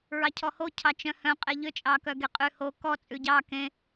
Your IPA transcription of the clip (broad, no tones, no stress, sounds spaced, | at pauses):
ɹ ɑ cʰ ɔ h o cʰ ɑ t͡ʃ œ̃ h œ̃ qʼ e ʎ ø t͡ʃʼ ɑ k œ ɡ e qʼ ʉ h o k ɔ t͡sʼ ʉ ɟ ɑ k ẽ